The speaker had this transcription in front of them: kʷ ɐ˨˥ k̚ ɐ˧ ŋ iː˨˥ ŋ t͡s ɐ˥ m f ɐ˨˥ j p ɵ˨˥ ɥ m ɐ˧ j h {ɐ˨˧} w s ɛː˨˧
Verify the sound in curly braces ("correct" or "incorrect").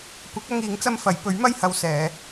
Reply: correct